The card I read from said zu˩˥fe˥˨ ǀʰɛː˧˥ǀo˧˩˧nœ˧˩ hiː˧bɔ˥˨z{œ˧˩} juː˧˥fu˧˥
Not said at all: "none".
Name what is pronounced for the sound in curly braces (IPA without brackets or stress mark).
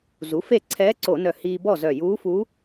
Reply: œ˧˩